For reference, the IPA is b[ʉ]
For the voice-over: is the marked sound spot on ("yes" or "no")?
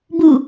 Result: no